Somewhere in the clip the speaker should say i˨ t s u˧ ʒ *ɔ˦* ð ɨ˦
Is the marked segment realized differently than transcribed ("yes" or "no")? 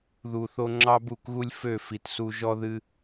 no